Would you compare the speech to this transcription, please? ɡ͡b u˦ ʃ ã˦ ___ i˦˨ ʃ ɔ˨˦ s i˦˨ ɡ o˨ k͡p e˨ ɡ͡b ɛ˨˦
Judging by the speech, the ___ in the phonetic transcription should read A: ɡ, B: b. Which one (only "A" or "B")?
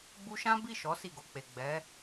B